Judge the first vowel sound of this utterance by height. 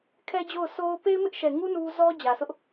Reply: mid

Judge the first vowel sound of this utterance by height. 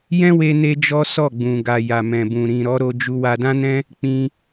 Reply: mid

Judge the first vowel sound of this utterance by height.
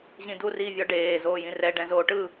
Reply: high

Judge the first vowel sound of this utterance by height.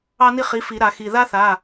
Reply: low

